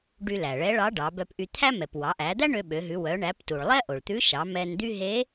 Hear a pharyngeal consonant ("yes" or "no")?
no